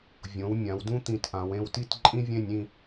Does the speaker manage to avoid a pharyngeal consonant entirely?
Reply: yes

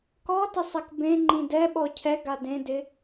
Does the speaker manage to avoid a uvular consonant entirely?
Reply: yes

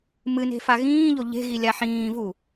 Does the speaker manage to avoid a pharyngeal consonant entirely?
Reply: no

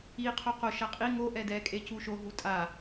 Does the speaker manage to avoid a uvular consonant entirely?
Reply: no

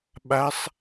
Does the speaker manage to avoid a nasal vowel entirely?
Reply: yes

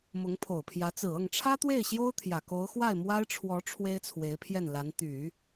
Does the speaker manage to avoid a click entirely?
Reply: yes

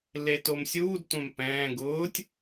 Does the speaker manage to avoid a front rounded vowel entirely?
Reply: yes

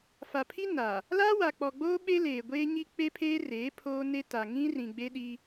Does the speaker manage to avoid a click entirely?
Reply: yes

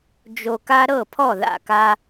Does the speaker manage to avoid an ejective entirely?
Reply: yes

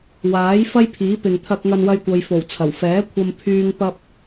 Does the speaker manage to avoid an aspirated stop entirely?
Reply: no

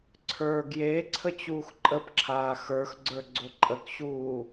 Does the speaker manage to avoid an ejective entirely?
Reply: no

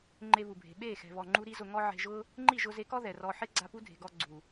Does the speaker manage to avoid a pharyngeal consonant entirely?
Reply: no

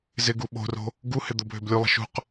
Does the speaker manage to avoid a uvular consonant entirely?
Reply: no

